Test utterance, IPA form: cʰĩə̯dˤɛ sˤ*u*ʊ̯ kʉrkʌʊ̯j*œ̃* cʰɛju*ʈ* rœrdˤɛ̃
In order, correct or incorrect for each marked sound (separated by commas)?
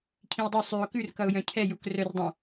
incorrect, correct, incorrect